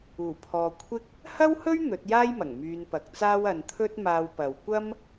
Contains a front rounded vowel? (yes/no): yes